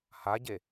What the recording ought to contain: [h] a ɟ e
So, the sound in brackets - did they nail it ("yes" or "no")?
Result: yes